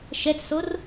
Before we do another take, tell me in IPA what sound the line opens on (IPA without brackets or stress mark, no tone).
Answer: ʃ